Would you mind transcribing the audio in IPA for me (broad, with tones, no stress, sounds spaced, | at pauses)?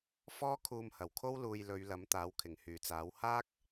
f ɔː˥ kʰ uː˧ m h ɐ˨˩ w kʰ o˥ w l uː˧ j l ɵ˨˧ ɥ l ɐ˨˥ m t̪ aː˨˥ w kʰ ɪ˨˩ ŋ h yː˨˩ t͡s aː˨˥ w h aː˥ k̚